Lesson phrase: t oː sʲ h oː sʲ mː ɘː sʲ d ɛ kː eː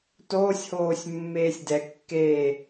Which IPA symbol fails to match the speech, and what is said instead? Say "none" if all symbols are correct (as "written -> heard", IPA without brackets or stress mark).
ɘː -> eː